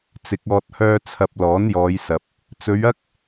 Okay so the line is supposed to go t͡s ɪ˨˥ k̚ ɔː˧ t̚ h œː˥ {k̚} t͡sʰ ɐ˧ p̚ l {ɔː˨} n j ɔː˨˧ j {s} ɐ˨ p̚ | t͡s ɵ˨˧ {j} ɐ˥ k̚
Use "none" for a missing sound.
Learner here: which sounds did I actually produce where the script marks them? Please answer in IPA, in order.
none, ɔː˨˥, s, ɥ

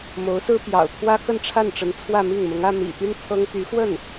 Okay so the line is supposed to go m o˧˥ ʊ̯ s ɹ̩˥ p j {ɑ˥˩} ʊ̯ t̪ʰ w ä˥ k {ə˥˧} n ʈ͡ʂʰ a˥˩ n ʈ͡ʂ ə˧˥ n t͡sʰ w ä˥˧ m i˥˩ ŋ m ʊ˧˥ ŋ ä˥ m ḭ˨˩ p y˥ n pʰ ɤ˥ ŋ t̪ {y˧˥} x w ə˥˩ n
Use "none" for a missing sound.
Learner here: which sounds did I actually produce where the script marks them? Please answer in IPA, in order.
ɑ̰˨˩, ə˥˧, y˧˥

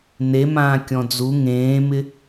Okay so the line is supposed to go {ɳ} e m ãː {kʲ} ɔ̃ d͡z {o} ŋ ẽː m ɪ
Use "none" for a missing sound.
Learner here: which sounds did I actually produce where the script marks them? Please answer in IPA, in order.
n, kʲ, u

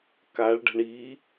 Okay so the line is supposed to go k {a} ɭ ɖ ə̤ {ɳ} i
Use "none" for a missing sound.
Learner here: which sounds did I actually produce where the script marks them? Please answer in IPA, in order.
a, ɳ

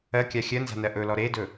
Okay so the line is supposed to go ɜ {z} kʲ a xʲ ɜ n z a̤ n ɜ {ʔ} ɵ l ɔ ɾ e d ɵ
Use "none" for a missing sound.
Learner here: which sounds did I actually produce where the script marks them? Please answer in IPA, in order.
none, ʔ

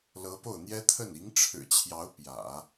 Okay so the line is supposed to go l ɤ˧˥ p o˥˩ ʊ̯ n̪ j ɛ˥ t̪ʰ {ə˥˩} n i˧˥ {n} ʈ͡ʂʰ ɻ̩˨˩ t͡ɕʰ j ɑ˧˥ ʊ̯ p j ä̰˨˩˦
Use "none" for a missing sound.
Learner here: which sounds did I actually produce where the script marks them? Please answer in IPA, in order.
ə˥˩, ŋ

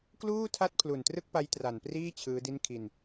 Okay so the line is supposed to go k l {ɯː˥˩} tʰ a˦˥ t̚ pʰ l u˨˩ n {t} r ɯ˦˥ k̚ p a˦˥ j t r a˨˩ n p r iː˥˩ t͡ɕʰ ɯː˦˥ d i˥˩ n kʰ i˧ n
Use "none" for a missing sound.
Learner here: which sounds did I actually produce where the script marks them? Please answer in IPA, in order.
uː˥˩, t

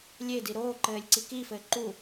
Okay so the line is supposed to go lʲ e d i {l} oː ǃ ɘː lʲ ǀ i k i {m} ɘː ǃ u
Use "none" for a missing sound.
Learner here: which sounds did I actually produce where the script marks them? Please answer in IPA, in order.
ɾ, f

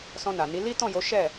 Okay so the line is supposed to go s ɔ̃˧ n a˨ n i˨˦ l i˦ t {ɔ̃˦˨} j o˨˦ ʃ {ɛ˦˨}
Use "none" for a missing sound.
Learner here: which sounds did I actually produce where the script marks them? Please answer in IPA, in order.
ɔ̃˦˨, ɛ˦˨

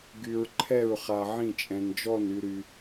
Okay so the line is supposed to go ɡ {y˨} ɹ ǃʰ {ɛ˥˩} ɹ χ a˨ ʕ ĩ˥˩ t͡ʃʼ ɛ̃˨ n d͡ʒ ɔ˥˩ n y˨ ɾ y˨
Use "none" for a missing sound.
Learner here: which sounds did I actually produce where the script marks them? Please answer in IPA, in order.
y˨, ɛ˥˩

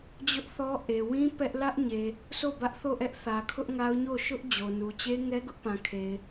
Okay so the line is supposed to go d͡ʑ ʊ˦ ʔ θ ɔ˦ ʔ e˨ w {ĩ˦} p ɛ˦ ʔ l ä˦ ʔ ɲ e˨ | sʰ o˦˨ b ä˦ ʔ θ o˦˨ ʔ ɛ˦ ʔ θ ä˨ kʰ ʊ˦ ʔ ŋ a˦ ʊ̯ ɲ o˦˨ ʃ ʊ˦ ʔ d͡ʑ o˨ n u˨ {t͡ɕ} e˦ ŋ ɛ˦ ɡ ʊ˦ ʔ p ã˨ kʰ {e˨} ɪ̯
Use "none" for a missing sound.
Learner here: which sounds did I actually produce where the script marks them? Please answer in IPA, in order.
ĩ˦, t͡ɕ, e˨

